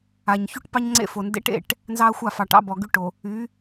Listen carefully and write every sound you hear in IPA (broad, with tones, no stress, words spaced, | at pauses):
a˨ɲ çu˦ʈpɑ˦ɲ ŋ͡ǀḛ˦˨fo˨ ndḛ˦ʈḛ˦˨ʈ | nzɑ˦ɐ̯xʷa˦˨fɑ˨ ʈɑ̰˦bɔ˨ɡy˦ ʈo˨ | y˨˦